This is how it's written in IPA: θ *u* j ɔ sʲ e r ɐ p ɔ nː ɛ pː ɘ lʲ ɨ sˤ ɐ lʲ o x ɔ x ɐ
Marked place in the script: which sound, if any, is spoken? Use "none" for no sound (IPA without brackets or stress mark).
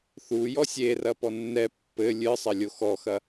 u